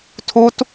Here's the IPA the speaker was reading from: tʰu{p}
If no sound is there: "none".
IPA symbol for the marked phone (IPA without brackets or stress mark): t